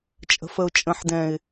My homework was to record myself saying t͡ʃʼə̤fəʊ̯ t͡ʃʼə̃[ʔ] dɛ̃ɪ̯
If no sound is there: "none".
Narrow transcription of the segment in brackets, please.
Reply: ħ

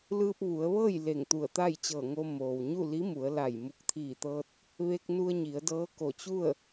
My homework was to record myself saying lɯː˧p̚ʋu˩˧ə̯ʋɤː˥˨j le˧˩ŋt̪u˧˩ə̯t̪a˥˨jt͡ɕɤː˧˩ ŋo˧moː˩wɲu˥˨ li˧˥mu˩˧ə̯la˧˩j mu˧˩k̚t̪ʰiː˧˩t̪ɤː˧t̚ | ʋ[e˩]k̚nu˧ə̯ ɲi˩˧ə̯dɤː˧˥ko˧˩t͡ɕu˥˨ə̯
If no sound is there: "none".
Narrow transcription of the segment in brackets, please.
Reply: e˧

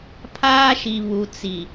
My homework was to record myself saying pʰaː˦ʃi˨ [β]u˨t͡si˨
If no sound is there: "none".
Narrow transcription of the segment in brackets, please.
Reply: β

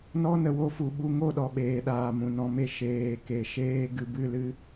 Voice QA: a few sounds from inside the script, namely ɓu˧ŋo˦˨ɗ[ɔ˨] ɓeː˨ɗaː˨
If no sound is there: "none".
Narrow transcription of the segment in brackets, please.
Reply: ɔ˨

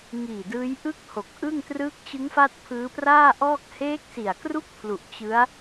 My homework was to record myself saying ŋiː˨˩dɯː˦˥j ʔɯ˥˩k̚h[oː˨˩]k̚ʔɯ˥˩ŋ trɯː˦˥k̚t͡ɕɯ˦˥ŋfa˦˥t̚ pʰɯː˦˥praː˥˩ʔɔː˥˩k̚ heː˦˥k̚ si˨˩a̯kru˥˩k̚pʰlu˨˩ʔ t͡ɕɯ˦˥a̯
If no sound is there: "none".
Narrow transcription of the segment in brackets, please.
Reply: o˨˩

